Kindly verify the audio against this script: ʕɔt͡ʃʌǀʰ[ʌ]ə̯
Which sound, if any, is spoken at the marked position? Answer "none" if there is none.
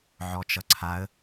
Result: a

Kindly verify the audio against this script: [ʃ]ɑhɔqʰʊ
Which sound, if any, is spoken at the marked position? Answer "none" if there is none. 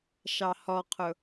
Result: ʃ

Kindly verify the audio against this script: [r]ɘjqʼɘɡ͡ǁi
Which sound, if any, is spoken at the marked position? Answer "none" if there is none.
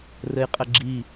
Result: r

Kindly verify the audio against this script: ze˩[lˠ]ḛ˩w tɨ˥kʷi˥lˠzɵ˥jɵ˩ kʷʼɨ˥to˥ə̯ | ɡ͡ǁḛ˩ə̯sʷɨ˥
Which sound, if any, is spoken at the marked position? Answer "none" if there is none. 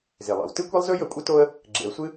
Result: lˠ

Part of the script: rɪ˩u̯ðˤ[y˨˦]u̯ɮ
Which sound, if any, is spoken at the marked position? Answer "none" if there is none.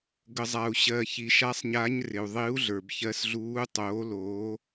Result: i˨˦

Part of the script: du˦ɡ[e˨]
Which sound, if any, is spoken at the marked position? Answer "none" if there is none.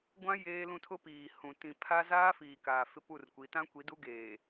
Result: eː˨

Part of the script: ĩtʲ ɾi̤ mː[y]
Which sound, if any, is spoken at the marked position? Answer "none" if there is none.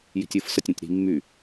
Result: y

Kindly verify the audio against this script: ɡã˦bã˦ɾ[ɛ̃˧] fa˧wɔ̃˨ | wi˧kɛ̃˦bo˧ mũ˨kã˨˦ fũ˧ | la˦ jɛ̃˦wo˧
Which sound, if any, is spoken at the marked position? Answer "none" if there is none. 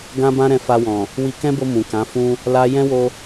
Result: ɛ̃˧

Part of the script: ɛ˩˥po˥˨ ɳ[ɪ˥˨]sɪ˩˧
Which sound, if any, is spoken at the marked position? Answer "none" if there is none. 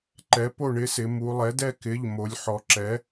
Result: ɪ˩˥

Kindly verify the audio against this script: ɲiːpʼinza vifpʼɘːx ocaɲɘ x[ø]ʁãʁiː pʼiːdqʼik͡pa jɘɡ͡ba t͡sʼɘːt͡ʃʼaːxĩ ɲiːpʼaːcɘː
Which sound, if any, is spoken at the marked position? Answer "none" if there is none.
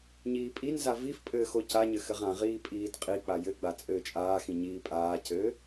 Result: ɘ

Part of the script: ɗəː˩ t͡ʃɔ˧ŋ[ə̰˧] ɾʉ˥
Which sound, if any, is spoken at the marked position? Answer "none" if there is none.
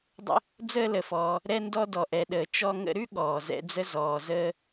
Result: ə̰˧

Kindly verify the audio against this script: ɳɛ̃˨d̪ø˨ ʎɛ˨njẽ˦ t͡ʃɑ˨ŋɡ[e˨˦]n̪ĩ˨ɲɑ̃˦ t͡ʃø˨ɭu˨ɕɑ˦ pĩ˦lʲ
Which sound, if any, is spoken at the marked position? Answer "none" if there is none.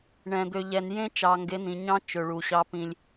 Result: e˨˦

